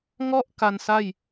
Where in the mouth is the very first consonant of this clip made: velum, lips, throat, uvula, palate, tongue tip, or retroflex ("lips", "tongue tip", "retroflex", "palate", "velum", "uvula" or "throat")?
velum